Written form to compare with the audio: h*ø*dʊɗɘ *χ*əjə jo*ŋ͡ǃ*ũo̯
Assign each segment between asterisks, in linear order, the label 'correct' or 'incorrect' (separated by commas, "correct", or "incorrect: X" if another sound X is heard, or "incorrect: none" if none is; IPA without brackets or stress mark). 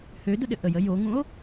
correct, incorrect: ʔ, incorrect: ŋ